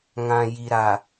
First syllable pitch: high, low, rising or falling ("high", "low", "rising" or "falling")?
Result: low